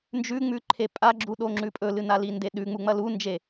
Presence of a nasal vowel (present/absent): absent